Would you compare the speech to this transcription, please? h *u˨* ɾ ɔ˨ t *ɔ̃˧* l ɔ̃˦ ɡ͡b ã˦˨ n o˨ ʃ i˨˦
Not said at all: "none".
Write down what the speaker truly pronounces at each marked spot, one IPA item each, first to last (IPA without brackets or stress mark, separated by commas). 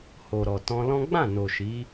o˨, ɔ̃˧